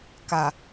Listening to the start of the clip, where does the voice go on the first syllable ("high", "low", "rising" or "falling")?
low